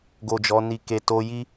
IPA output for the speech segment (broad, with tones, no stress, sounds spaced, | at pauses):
ɡ o˨ d͡ʒ ɔ˨˦ n i˧ k e˧ t o˧ j i˦